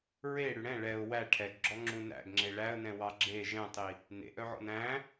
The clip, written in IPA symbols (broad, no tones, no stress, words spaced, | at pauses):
ɹe ɽʉɽɛ̃ ɭɛʊ̯ wæ ʈʰɛɡɡ͡ǁɔ ŋ͡ǁũnæ̰ɡŋ͡ǁe ɭæə̯nɛ̃ wɑɡ͡ǁe ʒɛ̃tˤi | nḛʔœʕɔ̰n æ̃